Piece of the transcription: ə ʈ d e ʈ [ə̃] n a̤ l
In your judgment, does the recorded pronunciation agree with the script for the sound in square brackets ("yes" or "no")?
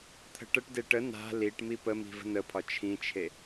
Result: no